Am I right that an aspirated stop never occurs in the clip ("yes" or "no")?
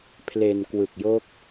no